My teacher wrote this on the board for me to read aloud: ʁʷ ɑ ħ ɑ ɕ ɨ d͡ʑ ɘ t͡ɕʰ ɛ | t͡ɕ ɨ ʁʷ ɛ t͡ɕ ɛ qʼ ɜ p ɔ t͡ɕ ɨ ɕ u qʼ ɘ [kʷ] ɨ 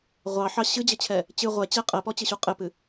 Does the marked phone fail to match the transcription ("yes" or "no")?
yes